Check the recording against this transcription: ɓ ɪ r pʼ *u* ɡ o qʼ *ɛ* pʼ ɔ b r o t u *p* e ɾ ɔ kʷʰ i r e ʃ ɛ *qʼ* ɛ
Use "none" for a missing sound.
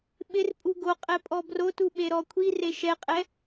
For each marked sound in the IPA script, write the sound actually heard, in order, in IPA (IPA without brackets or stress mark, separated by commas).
u, ɛ, ɓ, qʼ